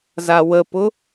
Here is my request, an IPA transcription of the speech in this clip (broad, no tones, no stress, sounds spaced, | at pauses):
z a w ə p ʊ